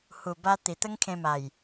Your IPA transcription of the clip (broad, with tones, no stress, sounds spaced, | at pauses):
h u˨˩ b a˧ t̪ i˨˩ t̪ ə˦ ŋ kʰ ẽ˧ m a˨˩ j